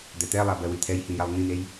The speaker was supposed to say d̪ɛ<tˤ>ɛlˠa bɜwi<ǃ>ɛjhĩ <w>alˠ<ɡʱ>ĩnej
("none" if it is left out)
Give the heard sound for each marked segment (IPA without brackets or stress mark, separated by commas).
t̪, t̪ʰ, j, ŋ